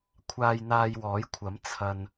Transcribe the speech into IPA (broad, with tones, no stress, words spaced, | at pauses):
kʷʰaː˧j n̪aː˧jwɔː˨˥jkʷʰɐ˨˥m t͡sʰɐ˧n